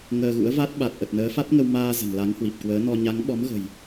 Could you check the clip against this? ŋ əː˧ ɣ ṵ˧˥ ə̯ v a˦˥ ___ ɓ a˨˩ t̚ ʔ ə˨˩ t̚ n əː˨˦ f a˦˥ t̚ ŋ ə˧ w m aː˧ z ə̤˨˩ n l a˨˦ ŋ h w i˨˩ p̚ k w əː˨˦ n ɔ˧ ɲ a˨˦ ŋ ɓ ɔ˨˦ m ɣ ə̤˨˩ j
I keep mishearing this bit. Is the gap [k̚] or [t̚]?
t̚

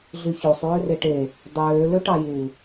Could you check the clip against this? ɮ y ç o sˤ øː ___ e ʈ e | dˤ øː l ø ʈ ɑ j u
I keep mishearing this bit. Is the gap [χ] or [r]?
r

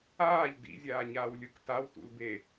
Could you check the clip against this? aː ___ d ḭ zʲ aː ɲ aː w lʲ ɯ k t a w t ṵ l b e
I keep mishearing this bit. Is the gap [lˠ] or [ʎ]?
ʎ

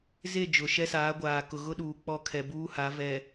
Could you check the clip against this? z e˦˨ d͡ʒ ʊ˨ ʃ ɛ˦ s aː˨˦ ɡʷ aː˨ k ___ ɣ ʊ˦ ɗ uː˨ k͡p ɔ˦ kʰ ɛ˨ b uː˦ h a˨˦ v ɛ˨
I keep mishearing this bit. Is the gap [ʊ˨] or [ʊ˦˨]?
ʊ˨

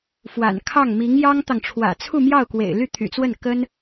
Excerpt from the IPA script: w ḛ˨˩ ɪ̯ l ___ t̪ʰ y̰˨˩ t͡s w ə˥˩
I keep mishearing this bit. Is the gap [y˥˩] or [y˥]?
y˥˩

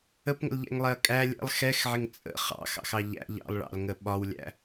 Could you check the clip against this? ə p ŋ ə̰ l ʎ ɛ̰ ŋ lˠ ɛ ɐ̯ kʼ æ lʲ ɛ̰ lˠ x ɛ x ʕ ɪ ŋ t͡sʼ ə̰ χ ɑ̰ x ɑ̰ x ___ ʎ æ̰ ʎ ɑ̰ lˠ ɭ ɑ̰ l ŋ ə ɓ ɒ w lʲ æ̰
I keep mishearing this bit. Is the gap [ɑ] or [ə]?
ɑ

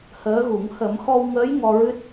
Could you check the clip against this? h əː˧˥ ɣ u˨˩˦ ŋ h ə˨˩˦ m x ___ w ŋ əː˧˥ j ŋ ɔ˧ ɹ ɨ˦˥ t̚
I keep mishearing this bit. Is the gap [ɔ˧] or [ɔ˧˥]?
ɔ˧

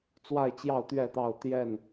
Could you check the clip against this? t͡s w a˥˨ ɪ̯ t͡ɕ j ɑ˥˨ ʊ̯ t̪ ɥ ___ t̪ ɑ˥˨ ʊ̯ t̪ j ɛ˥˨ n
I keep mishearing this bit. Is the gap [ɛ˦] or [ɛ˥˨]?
ɛ˥˨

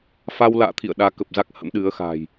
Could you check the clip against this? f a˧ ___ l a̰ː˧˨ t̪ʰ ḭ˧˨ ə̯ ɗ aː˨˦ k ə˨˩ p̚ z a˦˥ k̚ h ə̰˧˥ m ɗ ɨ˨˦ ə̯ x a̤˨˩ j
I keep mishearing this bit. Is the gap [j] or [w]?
w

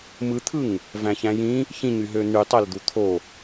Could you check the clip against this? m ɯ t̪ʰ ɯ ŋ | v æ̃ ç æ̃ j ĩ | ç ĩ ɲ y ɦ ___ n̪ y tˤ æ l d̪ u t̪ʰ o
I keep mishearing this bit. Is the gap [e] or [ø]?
ø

